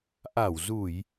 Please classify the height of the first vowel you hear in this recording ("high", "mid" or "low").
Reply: low